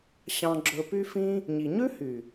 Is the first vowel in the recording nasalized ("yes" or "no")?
yes